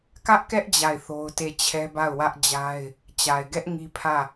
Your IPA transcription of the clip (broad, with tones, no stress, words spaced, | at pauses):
kä˦ʔkɛ˦ʔ d͡ʑa˦˨ɪ̯θo˦ʊ̯te˦˨ t͡ɕʰɛ˦ba˦˨ʊ̯wä˦ʔd͡ʑa˦ɪ̯ | t͡ɕa˨ɪ̯ɡɛ˦ʔ ŋi˦pʰä˦˨